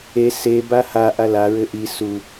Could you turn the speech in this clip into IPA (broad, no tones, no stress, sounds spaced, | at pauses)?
e s e b a h a ʔ a l a ɹ ɘ ʔ i s u